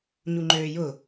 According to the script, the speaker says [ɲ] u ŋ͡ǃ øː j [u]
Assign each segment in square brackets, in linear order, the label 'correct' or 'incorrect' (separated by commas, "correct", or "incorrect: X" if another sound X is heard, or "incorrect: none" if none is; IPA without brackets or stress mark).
correct, incorrect: ʊ